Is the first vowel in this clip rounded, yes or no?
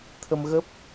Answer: no